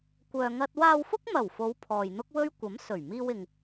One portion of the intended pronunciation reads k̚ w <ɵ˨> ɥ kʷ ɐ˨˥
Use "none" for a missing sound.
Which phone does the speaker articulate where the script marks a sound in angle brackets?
ɵ˥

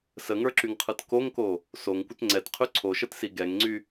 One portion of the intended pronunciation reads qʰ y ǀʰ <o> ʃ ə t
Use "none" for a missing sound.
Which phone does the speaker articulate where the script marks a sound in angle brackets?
o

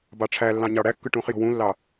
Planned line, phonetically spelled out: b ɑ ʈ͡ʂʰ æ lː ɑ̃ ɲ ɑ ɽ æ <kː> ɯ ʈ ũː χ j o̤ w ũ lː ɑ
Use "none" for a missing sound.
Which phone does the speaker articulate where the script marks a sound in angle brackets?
kː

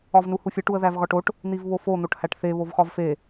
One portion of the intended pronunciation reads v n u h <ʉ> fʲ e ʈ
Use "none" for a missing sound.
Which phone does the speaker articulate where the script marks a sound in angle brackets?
u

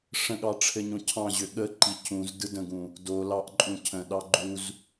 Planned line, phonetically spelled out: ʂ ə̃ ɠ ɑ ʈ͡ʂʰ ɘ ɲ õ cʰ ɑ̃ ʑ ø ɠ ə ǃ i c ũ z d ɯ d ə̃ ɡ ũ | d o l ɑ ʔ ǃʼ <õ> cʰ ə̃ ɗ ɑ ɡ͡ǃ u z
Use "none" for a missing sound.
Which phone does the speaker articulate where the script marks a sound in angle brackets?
ũ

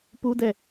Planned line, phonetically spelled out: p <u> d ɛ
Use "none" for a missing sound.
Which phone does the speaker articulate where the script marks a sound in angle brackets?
u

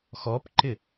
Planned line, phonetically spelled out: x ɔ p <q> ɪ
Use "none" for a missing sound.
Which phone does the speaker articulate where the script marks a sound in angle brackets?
ǃ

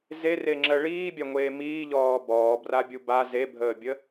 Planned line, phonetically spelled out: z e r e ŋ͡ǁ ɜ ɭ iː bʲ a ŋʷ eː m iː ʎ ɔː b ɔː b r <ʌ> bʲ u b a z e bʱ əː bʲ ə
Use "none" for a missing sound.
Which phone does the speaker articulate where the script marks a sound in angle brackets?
a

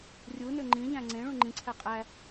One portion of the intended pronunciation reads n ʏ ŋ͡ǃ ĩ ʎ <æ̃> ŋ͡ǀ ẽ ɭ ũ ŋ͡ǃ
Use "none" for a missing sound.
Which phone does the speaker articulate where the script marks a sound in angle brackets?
æ̃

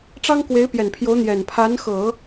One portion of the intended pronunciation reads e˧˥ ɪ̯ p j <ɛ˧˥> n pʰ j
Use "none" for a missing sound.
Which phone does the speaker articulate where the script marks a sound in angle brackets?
ɛ˨˩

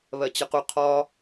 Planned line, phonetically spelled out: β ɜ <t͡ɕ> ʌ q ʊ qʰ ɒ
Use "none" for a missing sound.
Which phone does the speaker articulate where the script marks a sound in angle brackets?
t͡ɕ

